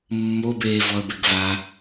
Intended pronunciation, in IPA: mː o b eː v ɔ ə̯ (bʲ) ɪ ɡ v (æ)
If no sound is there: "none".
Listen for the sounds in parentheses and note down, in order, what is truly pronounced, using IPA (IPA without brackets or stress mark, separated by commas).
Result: b, a